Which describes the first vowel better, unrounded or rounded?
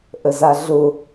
unrounded